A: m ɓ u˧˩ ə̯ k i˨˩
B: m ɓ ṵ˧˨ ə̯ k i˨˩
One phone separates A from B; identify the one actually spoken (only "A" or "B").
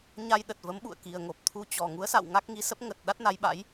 B